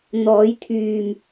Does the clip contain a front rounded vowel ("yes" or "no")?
yes